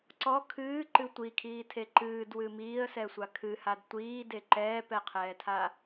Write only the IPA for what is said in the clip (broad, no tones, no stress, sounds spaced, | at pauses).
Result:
ǀ ɔ kʰ ɨː ǃ ɨ tʷ i kʰ iː tʰ e ǃ ɨː d w ɨ m iː ə̯ s ɛ sʷ a kʰ ɨ h a d tʷ iː d e ǃ ɛː p ɛ qʰ ɛː tʰ a